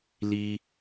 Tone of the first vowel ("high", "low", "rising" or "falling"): high